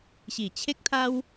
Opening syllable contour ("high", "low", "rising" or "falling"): low